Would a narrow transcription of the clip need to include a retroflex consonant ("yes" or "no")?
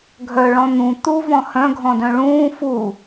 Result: yes